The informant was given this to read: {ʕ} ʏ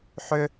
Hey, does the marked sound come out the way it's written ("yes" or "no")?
no